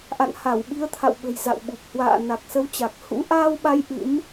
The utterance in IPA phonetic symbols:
ʔ a̰˧˨ n h a˧˩ w ɓ i˨˦ ə̯ t̪ʰ a̰˧˨ w ɓ ə̤˨˩ j z a̰˧˨ w ɓ u˨˩ p̚ h w a̰ː˧˨ n a˨˩ k̚ s ə˨˦ w t͡ɕ a˨˩ k̚ h ṵ˧˥ ʔ aː˧ w ɓ a˨˦ j ʔ ɨ̰˧˥ m

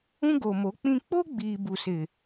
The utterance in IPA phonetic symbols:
ũ˦ ɡ o˨ m o˨˦ k͡p ĩ˦ k͡p o˦ ɡ͡b iː˨ b u˨ s ɪ˨

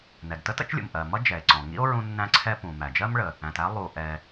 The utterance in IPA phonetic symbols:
n ɛ˩ ɡ t ə˥ t ə̰˥ t͡ʃ lʲ ṵ˩ m ʔ ɜ˩ m ʌ˥ d͡ʒ ɛ˩ e̯ ǀ ɔ̃˩ ŋ ḭ˥ o̯ ɹ ũ˥ nː æ̃˥ ǀʰ ɛ˥ p ũ˩ m æ˩ d͡ʒ ɜ˥ m ɭ ə˩ | æ̃˩ t æ˥ lˠ u˩ ʔ ɛ˩

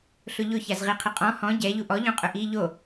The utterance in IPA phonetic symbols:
ɬ ʊ ʎ ʊ ç a z ʁ i qʰ ɪ qʼ ɔ̃ h ɔ̃ ɟ ɛ ʎ u ʔ ɔ ʎ õ qʼ ʊ ʔ i ʎ o

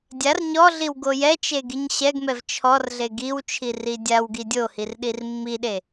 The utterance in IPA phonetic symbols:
dʲ a r ɲ ɔ ɮ i w ɡ o j ɛ t͡ʃ e ɡ i ɲ ɕ ɛ ɡ m ɛ v t͡ʃʰ ɔ r ɮ e ɡ i w t͡ʃʰ i r i dʲ a w ɡ i dʲ o h i r ɗ i r mː i ɗ e

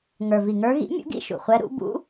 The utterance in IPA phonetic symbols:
ŋ ə˞˩ v i˩ ŋ ə˞˧˥ ɣ ḭ˧˥ mʲ ṵ˧˥ ɡ ḭ˧˥ ʃ ṵ˩ χʷ ɛ˧˥ ɾ ṵ˧˥ b ṵ˧˥

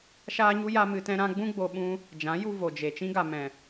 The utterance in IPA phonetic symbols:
ʃ aː˦ ɲ u˦ j a˦ m ɨ˧ t ɛ̃˦ ɾ ã˦ ɡ͡b ũ˦ ɡ͡b o˧ ɓ ũ˦ | d͡ʒ ã˨˦ j u˦ v o˨ d͡ʒ e˨ t͡ʃ ĩ˦ ɡ a˨ m ɛ̃˨

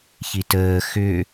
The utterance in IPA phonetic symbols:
ç i t əː x ʏ

